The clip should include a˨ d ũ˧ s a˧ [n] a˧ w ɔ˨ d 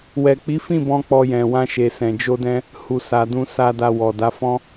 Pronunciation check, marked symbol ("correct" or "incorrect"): incorrect